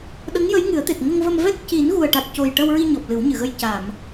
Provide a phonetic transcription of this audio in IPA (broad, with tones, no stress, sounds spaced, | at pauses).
ɗ ə˧˥ ŋ j ə˧˥ j ŋ ɨ˨˩˦ ə̯ t̪ e˨˩ t̚ ŋ ə˧ ŋ v ə˧ m v ɛ˦˥ k̚ c i˨˩˦ n ɣ u˨˩ ə̯ ʈ a˨˩ t̚ c o˨˩ j ʈ ə˧ w ɹ i˧ ɲ ɔ˨˩ p̚ l ɨ˨˩˦ w ɲ ɨ˨˩˨ ɣ ə˧ j c a˨˩˨ m